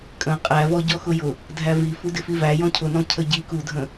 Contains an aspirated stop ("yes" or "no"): yes